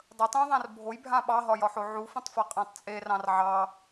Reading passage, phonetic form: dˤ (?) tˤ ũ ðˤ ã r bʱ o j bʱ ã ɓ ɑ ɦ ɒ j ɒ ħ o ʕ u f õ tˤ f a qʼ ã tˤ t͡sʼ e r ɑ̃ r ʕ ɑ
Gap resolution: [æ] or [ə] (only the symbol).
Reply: ə